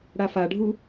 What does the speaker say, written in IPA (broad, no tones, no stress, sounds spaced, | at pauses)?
ɽ a f a ɖʱ u